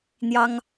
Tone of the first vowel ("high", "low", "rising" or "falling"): high